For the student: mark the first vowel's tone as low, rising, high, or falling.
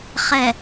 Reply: low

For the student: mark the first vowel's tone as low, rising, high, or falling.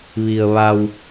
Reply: low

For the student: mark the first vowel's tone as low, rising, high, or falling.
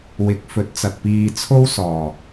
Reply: rising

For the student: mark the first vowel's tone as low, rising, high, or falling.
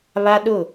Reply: high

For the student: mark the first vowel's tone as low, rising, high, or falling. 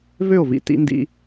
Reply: falling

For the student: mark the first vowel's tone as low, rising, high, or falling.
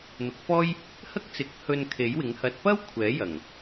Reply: rising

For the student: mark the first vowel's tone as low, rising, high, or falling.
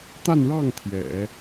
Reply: falling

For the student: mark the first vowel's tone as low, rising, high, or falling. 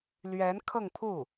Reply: rising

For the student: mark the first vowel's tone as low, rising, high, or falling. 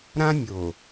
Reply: high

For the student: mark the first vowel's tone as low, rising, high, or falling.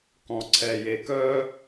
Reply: low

